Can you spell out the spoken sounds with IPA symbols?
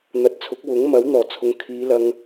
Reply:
n̪ɐ˨t̚t͡sʰʊ˨˥k̚wʊ˨˥ŋ mɐ˨˥w n̪ɔː˨˩t͡sʰʊ˨ŋ kʰiː˨˧lɐ˧ŋ

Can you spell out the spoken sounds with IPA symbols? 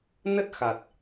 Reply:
nə˦˥t̚ xa˨˩t̚

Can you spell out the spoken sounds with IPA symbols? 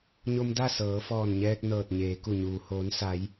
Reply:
ɲo˧mda˥˨ sɤː˩˧fɔː˧˩nɲɛː˧k̚ nɤː˧˩t̚ɲeː˩˧ku˧˩ɲuː˩ hoː˩˧nsa˩˧j

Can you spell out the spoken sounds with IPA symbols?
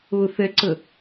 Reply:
ʊθɛǀə

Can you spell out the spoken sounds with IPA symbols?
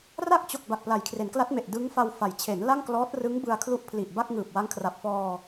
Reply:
ra˥˩k̚t͡ɕo˨˩k̚ ba˨˩k̚pla˩˦jkʰre˩˦nkla˦˥t̚ me˨˩ʔdɯ˦˥ŋfa˧w fa˩˦jt͡ɕʰe˩˦n la˥˩ŋklɔː˦˥t̚ rɯ˦˥ŋbɯ˧a̯kʰlu˦˥ʔ pʰli˨˩ʔba˥˩k̚ ŋɯː˨˩p̚wa˦˥ŋkʰra˨˩p̚fɔː˧

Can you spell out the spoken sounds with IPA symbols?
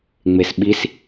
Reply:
ŋ͡mesɓis

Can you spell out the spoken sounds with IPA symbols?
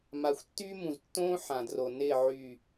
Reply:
ma˨xʷtːyː˦mũ˨ztːõː˦ ħã˨dro˨ nɪː˦˨ ʕy˦˨

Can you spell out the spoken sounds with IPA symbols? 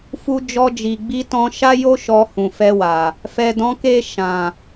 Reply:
fu˧d͡ʒɔ˧d͡ʒi˨ ɡ͡bi˧tɔ̃˧ ʃa˦jo˦ ʃɔ˧hũ˨fɛ˧wa˨ | fɛ˨dɔ̃˨˦ke˦˨ ʃã˨

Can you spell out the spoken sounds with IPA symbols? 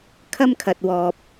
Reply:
kʰɐ˥mkʰɐ˨t̚ wɔː˨p̚

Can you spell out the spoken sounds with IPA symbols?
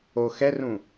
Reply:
o xɛrũ

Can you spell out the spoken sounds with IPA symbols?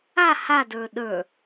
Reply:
a hadə˞ ɗə˞

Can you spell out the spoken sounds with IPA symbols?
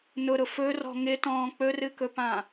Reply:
nʊɾʊ fɵrɔ̤ ŋɪtɔ̃ː k͡pɵrɨkɵpã

